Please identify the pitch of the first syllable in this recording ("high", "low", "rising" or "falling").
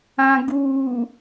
low